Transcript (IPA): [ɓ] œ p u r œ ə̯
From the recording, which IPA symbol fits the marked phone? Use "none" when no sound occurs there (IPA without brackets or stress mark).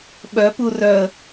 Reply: ɓ